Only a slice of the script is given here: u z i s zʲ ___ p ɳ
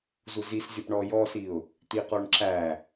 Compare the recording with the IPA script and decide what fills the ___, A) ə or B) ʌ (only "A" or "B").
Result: B